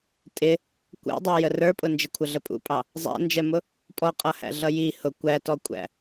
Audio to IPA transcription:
tʼ ɪ | kʷ æ̰ dˤ ɛ j ə r ə˞ pʼ ʊ n d͡ʒ ɪ kʷʰ ə ɮ ə pʼ ṵ pʼ ɑ | zˤ æ̰ n d͡ʒ ɛ m ʊ | pʼ ɔ qʼ ʌ h æ̰ ɮ ʌ j i h ʊ kʷ æ t ɔ kʷʼ æ̰

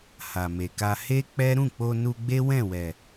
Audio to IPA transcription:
h a˨ m e˨ k a˧ h e˦ k͡p ɛ˦ ɾ ũ˦˨ k͡p o˧ n u˧ ɡ͡b e˦ w ɛ̃˦˨ w ɛ˨

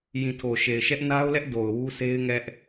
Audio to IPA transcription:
j ĩ˨ tʰ o˨ ʃ e˨ ɪ̯ ʃ ɛ˦ ʔ n a˦ ʊ̯ l ɛ˦ ʔ d o˨ ʊ̯ w u˦ s e˦ ɪ̯ ŋ ɛ˦ ʔ

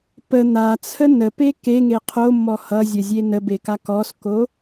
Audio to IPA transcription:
p ə n̪ a t͡sʰ ə n ə p e k e ŋ e qʰ o mː ɔ h ʌ zʲ ə zʲ e n ə b e k a k ɔ s k o

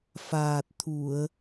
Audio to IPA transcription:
f aː˨˩ t̚ t̪ʰ u˨˩˨ ə̯

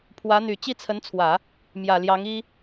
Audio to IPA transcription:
pʰ w ä˧˥ n̪ y˨˩ t͡ɕ i˥˩ t͡sʰ ə˧˥ n t͡sʰ w ä˨˩˦ | m j ä˨˩ l j ɑ˧˥ ŋ i˥

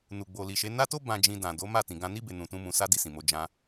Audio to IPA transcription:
n u˨ ɡ͡b o˨ l i˨ ʃ e˨˦ n a˦ t o˦ b ã˧ d͡ʒ ĩ˧ d ã˨ d o˨˦ m a˦˨ t ĩ˨ ɡ ã˧ n i˦ b e˧ n ũ˧ t ũ˦ m ũ˧ s a˦ d i˧ s ĩ˨ m o˧ d͡ʒ ã˦

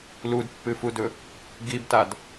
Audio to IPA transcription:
l u d pː ɨ f u d ɵ | ɡ i b t a d

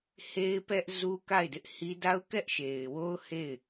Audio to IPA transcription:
h e˦ ɪ̯ p ɛ˦ ʔ z u˦ k a˦˨ ɪ̯ d ɪ˦ ʔ h i˦ d a˦ ʊ̯ k ɛ˦ ʔ ʃ e˨ ɪ̯ w o˦ ʊ̯ h e˦˨ ɪ̯

